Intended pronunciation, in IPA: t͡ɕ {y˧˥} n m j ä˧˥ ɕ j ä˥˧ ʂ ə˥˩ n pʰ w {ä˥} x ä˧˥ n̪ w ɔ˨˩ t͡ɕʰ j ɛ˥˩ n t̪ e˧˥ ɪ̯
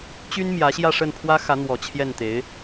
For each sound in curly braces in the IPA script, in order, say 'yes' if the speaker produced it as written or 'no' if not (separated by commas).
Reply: no, yes